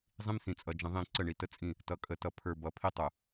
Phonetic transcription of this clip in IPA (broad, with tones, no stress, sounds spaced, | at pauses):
zˤ ĩ˦ m s ĩ˨ t͡sʼ ʌ˨ d͡ʒ ə̃˨ ðˤ ĩ˦˨ ǀ ə˦˨ ɳ i˨ t ə˦ t͡sʼ ĩ˦˨ | t ʌ˨ kʼ ə˨ t ʌ˨ pʰ ə˞˨ b ʌ˨ pʰ i˦ tˤ ʊ˨